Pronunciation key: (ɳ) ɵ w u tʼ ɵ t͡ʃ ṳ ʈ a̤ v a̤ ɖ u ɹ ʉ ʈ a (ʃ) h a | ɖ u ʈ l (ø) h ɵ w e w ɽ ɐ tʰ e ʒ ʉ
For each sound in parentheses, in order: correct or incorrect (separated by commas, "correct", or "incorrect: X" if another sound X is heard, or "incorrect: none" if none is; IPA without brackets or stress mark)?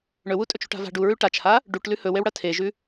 correct, incorrect: t͡ʃ, incorrect: ʉ